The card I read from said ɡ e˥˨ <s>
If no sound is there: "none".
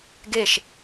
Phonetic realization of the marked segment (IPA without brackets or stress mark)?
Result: ʃ